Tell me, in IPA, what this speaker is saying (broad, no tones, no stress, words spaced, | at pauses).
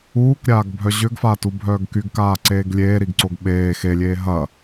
uːkɾʲaːɡbʱœ ʑʏɡfatubʱœːɡ kyɡkaːǀeːɡ lʲeːɾiɡǀoɡ ɓeː xelʲeː ɦɐ